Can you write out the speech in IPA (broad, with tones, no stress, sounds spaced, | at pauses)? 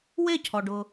w e˥˨ cʰ ɔ˨ ɖ ʊ˨